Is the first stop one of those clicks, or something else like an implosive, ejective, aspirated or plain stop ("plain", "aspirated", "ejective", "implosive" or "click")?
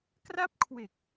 plain